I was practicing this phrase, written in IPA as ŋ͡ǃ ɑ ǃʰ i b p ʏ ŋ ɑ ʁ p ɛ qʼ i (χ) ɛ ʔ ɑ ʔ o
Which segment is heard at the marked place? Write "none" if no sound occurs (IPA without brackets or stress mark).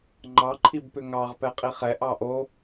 χ